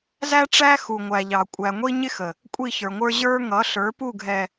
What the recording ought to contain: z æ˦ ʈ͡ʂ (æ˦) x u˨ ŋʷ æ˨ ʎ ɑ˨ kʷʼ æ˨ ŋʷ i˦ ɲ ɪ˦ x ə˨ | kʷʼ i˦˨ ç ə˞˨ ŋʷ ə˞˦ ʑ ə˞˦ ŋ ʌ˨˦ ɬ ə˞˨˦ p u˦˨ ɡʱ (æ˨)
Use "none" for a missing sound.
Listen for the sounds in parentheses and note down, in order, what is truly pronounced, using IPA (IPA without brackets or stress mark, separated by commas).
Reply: æ˦, ɛ˨